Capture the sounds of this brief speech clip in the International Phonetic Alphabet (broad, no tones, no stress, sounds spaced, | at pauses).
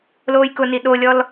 l oː j k ʊ n i ɗ o lʲ ɔ l